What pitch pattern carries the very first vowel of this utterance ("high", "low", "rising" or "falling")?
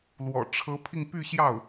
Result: low